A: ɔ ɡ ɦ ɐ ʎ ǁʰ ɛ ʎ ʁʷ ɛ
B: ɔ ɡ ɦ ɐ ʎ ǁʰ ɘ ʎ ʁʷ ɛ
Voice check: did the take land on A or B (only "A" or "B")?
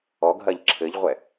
B